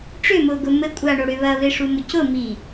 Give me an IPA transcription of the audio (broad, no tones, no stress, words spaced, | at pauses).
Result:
ʈ͡ʂʏmʊːɡʊ mɘ kʷʼaɳoɽʏ βɐβeʂumʊ cʊmi